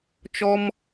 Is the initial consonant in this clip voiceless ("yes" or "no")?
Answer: yes